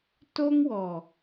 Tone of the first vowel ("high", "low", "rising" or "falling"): high